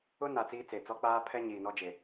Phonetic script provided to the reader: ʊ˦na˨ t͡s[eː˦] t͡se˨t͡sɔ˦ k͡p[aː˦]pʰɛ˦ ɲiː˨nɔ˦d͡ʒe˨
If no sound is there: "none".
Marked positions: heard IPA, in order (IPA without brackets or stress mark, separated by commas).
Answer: iː˦, aː˦